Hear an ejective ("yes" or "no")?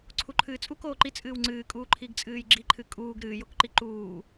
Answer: yes